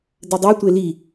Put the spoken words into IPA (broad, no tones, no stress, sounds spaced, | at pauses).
d ɘ dˤ e tʷ e l i